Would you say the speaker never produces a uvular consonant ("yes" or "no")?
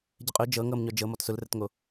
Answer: no